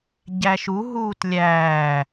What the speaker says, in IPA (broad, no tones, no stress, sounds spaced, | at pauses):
ɟ æ ʃ u ɦ uː t lʲ æː